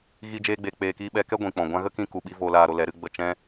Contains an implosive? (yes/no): yes